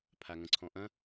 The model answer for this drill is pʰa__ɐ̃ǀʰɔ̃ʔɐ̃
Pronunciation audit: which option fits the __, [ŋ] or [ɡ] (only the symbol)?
ŋ